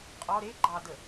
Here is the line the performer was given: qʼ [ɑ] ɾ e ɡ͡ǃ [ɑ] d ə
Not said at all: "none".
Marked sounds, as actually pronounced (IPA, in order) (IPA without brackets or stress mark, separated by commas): ɔ, ɑ